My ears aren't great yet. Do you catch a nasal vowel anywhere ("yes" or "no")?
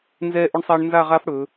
no